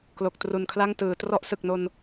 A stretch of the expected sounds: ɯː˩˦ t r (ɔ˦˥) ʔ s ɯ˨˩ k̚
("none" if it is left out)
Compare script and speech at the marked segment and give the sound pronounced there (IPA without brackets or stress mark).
ɔ˦˥